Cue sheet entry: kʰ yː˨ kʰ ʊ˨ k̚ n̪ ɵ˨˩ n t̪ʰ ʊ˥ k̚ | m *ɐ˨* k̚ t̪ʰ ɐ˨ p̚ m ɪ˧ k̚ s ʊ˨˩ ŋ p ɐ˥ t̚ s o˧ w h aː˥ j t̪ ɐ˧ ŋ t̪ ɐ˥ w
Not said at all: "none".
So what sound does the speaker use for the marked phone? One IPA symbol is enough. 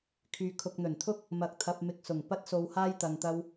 ɐ˨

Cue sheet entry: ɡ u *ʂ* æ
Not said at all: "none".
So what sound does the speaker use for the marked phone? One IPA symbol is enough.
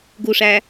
ʂ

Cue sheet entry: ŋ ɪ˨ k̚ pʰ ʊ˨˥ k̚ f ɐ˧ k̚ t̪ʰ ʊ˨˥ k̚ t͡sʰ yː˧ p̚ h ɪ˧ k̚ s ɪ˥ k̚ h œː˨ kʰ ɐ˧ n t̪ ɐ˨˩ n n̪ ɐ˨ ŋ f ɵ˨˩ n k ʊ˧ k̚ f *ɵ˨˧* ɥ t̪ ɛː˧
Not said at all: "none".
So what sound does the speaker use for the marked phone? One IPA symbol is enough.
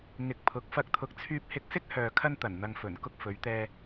ɵ˨˧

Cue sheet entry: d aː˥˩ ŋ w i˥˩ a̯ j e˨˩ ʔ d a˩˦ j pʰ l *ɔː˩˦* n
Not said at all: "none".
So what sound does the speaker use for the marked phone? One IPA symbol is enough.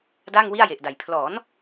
ɔː˩˦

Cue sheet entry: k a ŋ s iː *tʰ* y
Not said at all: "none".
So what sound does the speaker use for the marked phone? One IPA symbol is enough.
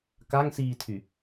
tʰ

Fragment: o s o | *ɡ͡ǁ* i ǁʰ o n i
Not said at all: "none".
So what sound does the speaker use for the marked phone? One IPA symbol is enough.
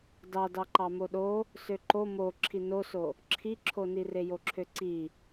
ǁʰ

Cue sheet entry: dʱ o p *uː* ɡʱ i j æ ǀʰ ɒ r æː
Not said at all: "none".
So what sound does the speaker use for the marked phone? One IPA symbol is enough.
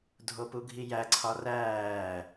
u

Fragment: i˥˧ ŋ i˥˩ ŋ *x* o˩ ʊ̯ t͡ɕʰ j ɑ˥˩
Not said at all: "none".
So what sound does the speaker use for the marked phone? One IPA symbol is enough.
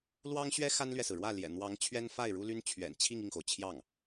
x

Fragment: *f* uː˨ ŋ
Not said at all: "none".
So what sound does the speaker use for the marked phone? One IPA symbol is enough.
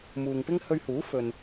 m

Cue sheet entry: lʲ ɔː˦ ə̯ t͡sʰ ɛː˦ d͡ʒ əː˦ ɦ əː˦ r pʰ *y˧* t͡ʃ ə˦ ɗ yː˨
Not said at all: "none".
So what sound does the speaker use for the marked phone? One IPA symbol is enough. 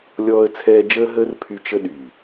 y˧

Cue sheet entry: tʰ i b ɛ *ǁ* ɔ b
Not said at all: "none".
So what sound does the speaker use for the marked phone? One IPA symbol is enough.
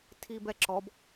ǁ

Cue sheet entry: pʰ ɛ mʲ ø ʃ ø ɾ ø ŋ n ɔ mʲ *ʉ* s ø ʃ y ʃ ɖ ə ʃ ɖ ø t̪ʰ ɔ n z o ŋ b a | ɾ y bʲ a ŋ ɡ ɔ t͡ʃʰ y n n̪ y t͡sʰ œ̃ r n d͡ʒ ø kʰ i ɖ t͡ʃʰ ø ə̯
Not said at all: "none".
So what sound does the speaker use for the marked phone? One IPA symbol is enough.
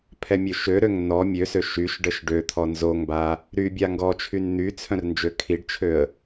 ø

